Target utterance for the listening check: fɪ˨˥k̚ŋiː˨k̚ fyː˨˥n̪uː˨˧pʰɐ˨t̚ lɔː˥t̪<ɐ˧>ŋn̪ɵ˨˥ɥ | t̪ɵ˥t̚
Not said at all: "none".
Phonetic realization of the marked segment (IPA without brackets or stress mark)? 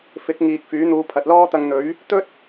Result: ɐ˧